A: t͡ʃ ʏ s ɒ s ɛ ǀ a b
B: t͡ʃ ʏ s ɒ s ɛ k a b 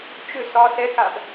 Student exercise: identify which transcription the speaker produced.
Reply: B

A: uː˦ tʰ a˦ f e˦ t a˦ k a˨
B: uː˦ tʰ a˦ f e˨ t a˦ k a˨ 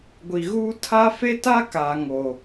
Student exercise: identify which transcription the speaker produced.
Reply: A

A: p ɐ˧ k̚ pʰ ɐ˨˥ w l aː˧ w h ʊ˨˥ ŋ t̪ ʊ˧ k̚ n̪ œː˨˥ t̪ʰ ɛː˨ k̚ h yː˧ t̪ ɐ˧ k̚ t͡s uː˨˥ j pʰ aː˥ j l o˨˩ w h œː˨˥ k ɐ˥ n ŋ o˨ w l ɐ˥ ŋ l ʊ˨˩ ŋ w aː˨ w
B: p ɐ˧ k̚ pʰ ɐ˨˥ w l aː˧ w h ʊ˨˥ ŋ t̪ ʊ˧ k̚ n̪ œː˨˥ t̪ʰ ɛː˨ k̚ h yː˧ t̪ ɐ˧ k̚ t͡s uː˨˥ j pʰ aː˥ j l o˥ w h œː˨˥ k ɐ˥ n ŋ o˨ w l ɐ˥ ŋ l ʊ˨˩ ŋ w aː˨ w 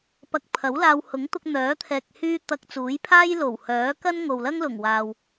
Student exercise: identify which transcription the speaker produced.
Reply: A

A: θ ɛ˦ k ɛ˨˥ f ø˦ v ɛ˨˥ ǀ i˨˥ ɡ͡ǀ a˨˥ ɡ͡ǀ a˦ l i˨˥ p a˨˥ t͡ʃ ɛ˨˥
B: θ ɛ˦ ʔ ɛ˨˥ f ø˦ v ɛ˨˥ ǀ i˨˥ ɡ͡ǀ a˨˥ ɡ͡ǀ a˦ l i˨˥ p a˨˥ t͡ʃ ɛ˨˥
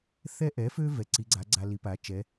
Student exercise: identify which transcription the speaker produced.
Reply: B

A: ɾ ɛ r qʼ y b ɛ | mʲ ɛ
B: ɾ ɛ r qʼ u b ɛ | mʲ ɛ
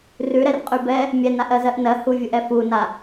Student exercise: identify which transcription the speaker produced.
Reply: A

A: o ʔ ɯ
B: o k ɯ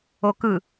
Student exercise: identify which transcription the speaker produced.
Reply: B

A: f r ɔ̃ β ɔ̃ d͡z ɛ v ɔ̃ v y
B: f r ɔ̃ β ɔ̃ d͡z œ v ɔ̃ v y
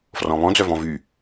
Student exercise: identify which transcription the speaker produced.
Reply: B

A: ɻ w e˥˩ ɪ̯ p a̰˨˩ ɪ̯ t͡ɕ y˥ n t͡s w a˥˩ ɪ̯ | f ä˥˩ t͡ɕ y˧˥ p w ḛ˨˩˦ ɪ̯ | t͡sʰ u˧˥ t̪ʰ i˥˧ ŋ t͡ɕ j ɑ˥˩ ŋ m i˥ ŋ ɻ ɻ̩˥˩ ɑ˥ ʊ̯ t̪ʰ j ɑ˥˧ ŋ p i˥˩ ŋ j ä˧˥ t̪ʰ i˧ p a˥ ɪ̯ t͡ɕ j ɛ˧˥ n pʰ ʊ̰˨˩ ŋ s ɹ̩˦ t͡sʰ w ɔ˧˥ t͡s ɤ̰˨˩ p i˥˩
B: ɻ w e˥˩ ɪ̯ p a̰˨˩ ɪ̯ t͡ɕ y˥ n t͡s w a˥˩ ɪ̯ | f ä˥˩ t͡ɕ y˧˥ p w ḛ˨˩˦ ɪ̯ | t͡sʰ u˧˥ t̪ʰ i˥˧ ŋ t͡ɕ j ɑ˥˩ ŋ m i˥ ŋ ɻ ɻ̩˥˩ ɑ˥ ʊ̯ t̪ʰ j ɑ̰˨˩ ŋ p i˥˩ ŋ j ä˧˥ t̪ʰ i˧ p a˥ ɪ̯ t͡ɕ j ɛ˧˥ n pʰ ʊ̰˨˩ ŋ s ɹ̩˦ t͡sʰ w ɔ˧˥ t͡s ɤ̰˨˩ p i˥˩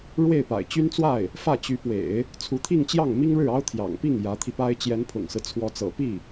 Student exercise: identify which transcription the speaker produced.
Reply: B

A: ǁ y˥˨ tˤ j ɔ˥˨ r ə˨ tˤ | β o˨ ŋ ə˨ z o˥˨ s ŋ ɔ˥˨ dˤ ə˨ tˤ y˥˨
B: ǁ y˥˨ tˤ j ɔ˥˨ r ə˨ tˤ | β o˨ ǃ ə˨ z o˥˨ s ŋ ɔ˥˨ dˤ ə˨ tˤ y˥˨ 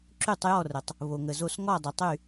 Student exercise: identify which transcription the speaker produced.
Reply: A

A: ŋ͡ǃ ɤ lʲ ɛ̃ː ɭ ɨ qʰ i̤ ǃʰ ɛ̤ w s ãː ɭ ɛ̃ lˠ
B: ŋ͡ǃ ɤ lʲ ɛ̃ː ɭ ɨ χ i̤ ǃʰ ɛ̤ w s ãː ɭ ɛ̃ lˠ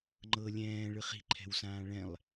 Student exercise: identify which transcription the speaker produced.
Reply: B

